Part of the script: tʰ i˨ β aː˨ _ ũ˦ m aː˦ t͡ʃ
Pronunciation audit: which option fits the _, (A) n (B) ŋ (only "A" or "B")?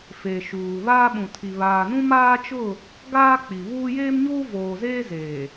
A